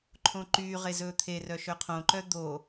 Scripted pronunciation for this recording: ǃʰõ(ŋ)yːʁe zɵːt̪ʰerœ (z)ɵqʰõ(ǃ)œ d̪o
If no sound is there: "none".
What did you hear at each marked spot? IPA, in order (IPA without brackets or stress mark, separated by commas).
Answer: ǃ, ʃ, ǃ